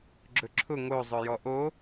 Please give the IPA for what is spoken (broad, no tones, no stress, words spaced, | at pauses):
ɡ͡ǁɵǁʰʊ ŋo zˤɵjɔʔo